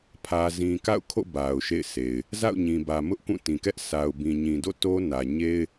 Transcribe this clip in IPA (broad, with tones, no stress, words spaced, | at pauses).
pʰä˨zĩ˨ka̰˦˨ʊ̯kʰo̰˦˨ ba˨ʊ̯ʃḛ˦˨ɪ̯sʰe˨ɪ̯ | za̰˦˨ʊ̯ɲĩ˨bä˨ mʊ˦ʔkũ˦˨tĩ˨kɛ˦ʔ sʰa˨ʊ̯bĩ˨ɲĩ˨ do̰˦˨ to˦nä˨ ɲe˦ɪ̯